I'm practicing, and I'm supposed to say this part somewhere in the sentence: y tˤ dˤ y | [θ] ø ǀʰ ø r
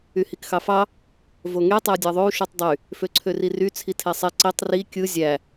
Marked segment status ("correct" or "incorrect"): incorrect